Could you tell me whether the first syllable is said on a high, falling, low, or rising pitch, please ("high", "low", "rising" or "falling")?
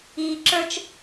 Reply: low